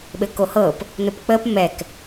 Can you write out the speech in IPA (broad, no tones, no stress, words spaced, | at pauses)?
ɓɘkohɤp | nʊpk͡pəp mɛk